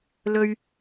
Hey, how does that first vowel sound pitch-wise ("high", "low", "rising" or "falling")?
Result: low